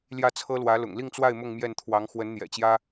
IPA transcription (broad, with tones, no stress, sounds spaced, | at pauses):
l j ä˥˩ t͡sʰ ɤ˥ l w ä˧˥ l ʊ̰˨˩ ŋ l i˥˧ ŋ t͡s w a˥˧ ɪ̯ m ʊ˥˧ ŋ m j ɛ˥˩ n t̪ʰ w ɑ˧˥ ŋ x w ə˧˥ n n̪ j ɛ̰˨˩ t͡ɕ j ä˥